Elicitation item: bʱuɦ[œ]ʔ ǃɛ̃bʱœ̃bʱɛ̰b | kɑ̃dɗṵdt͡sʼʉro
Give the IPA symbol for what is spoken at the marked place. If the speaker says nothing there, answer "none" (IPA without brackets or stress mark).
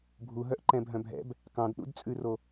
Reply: œ